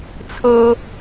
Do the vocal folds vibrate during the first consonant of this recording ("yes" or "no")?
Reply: no